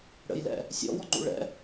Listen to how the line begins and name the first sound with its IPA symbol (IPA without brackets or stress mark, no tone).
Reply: ɽ